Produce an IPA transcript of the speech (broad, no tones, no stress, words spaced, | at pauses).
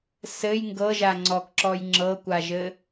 sɘj ŋɡɤʒa ŋ͡ǀɔkǁɔj ŋ͡ǁɤkʷaʒɘ